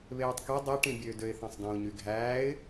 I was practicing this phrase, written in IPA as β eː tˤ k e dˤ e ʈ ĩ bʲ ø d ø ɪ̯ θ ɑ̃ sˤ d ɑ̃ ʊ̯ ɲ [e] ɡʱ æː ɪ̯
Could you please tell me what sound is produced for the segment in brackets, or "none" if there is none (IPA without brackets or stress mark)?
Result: y